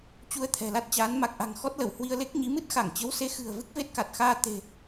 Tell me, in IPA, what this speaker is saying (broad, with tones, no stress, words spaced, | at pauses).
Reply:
t͡ɕu˧ə̯t̪ʰɛ̤˨˩ la˦˥t̚t͡ɕaː˨˦n ma˨˩k̚ʔa̤˨˩ŋ xɔ˦˥t̚ lə˧˩w hwi˧ə̯le˦˥k̚ɲi˨˦ mɨ˦˥t̚ xa˧˩ŋt͡ɕə˨˦wse˨˦ xɨ̤˨˩ə̯ vɨ˦˥k̚ve˦˥t̚ka˨˩t̚xaː˧ t̪e̤˨˩